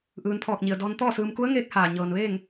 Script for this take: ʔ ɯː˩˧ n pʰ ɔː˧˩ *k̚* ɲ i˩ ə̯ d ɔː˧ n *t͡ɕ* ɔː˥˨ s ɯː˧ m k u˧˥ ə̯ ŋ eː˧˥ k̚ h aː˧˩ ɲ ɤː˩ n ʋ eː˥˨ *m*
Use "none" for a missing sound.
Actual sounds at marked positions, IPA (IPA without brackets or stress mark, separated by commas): k̚, t̪, ŋ